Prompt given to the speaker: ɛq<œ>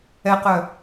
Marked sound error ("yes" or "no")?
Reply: no